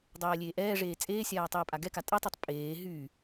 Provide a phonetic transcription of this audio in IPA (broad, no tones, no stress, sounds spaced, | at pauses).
dˤ ɛː lʲ eː ʔ ɛː ʐ eː t͡sʼ eː sʲ aː tˤ eː pʼ a ɡ ɛ k a tʼ ɛ tˤ y tˤ pʼ eː ɦ y